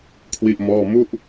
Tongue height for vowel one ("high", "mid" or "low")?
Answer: high